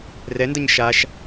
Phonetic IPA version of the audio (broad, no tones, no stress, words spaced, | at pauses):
rɛndʌɲ ʃaʃ